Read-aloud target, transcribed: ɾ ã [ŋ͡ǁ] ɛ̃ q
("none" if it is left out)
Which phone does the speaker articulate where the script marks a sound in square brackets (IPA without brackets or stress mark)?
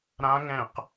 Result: ŋ